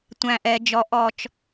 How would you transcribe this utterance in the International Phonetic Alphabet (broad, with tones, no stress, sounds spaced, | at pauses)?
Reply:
tʷ æ̃˨ ʔ ɛ˨ d͡ʒ ɔ˨ ʔ ɔ˨ t͡ʃ